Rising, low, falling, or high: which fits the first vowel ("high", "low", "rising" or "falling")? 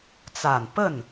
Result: low